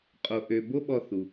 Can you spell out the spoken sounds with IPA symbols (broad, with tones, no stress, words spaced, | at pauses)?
qʼo˧ʔø˧ bo˥ɓɔ˧θu˩